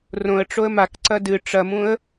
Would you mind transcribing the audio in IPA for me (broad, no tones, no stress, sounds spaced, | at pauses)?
r õ ə̯ ʈ͡ʂ o ə̯ m a k ǀ ɐ d ɨ ʈ͡ʂ ɐ m ũ ə̯